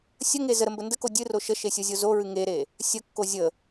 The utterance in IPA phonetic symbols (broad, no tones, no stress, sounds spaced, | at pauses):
sʲ ə ŋ e z ə ɾ ə m b ə n d ə k o dʲ ɨ r o ʃ ə ʃ e sʲ o zʲ o z o ɹ ɨ ŋ e ɾ e | sʲ ə kː o zʲ ə